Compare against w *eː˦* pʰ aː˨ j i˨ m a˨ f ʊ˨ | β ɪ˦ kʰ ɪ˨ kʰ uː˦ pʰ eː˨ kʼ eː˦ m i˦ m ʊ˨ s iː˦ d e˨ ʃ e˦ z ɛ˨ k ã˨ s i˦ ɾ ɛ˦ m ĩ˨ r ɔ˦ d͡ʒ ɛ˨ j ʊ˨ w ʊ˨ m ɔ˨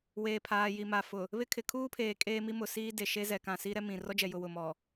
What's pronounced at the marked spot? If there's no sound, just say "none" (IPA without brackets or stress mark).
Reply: eː˨